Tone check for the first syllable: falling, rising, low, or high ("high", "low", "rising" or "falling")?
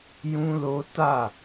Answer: high